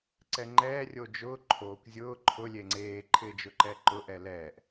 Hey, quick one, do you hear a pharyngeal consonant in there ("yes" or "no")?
no